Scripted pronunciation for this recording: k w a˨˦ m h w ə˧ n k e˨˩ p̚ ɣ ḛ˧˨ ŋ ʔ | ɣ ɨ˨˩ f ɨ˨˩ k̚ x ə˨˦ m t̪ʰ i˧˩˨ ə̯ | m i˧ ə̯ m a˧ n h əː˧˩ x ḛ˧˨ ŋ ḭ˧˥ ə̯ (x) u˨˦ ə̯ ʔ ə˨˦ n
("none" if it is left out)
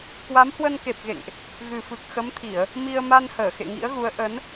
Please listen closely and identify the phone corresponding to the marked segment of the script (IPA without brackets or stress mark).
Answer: ɣ